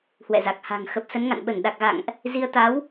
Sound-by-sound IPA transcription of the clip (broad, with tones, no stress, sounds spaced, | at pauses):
h w ɛ̰˧˨ z a˨˩ k̚ h a̤˨˩ ŋ x ə˨˩ p̚ s ə˨˦ n ŋ a̰˧˨ n ɓ ə˧˩ n ɗ a˨˩ k̚ ɣ a̰˧˨ ŋ ʔ | z i˨˦ ə̯ t̪ a˨˦ w